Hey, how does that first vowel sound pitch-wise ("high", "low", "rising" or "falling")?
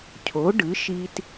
rising